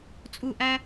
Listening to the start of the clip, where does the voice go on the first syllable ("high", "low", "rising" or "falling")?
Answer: falling